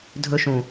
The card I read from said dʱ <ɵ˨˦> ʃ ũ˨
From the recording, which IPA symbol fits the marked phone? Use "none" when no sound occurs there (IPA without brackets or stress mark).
ɵ˦